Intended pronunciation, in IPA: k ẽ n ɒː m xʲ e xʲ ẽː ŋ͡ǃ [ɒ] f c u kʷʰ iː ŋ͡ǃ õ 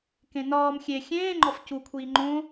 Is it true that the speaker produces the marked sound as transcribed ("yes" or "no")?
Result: yes